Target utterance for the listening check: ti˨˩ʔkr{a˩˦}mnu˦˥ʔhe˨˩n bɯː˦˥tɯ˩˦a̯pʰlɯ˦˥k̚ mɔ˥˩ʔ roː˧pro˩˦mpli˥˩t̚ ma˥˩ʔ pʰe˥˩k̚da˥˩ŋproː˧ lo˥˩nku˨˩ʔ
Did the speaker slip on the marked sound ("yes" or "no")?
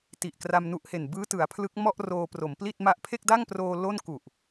yes